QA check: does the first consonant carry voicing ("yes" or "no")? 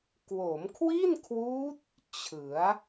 no